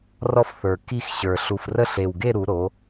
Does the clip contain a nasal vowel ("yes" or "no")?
no